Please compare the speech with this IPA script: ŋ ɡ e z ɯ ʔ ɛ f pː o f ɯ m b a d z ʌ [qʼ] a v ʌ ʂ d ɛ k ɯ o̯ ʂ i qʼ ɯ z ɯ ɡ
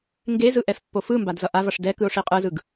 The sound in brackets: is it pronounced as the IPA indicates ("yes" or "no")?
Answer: no